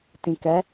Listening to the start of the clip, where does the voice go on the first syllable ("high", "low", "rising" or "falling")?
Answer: low